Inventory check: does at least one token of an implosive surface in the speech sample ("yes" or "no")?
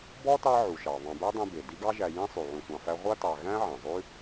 no